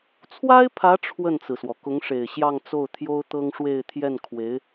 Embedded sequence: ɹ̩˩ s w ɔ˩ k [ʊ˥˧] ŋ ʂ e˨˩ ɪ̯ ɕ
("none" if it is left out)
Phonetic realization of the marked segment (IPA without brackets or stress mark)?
ʊ˧˥